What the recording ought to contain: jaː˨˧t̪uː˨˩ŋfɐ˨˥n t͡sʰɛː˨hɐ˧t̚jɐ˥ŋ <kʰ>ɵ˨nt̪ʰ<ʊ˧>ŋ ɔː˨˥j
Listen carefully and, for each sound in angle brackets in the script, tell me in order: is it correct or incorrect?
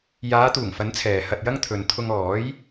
incorrect: t̪ʰ, correct

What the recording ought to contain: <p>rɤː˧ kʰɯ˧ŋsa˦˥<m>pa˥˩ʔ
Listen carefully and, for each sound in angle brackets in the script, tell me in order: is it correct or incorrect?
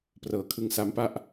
correct, correct

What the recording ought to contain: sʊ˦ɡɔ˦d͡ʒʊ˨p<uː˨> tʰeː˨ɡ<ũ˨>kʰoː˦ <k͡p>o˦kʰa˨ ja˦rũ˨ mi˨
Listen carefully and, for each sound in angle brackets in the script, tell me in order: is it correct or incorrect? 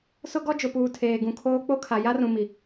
correct, correct, correct

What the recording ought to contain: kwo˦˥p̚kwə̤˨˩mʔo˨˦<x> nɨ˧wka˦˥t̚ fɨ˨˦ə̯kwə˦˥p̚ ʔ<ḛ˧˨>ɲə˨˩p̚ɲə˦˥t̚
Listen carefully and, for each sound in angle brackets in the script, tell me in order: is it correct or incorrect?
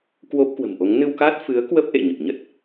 incorrect: ŋ, correct

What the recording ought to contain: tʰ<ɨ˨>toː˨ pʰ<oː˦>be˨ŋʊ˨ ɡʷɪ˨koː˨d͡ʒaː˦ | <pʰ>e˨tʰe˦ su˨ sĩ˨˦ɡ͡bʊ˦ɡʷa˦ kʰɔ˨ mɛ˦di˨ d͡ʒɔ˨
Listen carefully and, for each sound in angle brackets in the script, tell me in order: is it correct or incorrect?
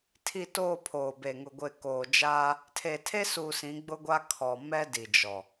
incorrect: i˨, incorrect: oː˨, incorrect: tʰ

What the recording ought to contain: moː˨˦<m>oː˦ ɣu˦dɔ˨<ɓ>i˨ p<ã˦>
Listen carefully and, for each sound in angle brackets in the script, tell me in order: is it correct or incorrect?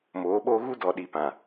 incorrect: ɓ, incorrect: ɗ, incorrect: ã˨

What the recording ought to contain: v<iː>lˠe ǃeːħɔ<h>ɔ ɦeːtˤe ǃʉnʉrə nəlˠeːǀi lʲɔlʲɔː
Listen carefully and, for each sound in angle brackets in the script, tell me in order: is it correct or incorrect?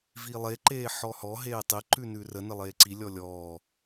correct, correct

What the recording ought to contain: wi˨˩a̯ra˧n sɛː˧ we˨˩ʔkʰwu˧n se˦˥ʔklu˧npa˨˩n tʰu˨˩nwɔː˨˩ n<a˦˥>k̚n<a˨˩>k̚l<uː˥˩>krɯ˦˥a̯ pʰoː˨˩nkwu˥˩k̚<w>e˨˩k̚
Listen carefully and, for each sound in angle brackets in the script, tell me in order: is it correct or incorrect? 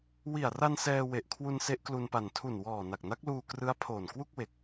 incorrect: a˨˩, incorrect: a˦˥, incorrect: uː˧, correct

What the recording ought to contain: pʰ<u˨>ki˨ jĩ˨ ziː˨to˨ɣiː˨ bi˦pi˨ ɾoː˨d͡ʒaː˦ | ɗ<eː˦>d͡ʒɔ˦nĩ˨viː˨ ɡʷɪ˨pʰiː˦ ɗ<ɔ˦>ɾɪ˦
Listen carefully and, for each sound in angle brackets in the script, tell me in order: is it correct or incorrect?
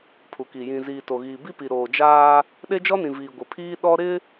correct, incorrect: e˦, correct

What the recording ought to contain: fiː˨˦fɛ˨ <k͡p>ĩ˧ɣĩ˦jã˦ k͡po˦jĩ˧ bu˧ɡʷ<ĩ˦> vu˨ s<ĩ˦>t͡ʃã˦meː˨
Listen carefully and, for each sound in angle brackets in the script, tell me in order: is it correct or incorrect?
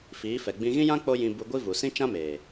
incorrect: ɡ͡b, incorrect: i˦, correct

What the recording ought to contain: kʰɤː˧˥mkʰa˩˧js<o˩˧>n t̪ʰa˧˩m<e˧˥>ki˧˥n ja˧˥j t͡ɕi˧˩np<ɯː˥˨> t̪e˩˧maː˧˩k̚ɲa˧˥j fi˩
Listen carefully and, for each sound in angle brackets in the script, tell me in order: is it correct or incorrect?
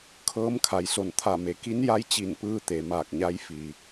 incorrect: o˧˩, incorrect: e˩˧, incorrect: ɯː˧

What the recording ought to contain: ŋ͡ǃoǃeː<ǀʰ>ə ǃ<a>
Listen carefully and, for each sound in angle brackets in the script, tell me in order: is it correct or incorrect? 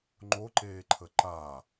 incorrect: ǃʰ, correct

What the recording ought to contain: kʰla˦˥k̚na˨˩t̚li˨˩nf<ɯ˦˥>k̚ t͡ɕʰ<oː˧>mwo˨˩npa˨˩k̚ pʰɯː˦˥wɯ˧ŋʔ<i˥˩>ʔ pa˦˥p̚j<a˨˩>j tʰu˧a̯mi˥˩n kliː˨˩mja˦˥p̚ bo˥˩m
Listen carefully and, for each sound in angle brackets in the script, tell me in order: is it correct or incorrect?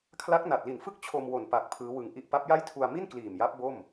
incorrect: ɯ˥˩, incorrect: o˧, correct, incorrect: a˥˩

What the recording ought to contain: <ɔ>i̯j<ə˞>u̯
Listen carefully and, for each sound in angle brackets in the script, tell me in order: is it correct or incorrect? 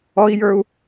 correct, correct

